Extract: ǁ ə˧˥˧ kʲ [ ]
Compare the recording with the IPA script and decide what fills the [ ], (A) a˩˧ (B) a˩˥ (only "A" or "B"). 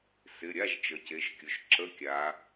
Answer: A